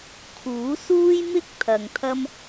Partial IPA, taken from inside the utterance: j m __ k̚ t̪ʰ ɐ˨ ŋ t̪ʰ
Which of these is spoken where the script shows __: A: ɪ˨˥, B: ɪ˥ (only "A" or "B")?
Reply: B